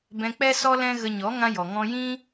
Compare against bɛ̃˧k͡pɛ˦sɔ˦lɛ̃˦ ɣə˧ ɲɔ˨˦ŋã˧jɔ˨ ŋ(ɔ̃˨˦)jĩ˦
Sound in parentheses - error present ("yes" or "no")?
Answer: yes